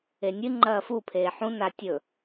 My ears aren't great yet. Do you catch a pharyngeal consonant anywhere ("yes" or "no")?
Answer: yes